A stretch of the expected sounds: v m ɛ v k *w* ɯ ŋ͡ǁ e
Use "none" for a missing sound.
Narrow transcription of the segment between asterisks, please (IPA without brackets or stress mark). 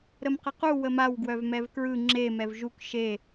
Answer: ɹ